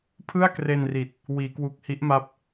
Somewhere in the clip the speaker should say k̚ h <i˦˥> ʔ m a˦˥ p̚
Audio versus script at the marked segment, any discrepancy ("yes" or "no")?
no